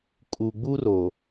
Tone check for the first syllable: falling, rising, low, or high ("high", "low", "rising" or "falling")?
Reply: low